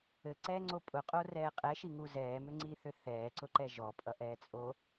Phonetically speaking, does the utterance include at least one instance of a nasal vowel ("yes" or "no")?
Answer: no